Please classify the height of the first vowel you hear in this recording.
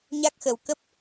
low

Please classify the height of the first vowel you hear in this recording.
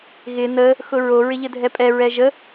high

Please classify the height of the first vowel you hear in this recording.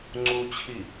high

